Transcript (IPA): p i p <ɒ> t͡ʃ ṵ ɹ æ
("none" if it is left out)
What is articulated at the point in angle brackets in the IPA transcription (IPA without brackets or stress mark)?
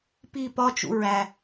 ɒ